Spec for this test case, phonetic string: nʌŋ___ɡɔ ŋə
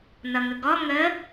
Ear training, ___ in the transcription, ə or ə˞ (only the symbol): ə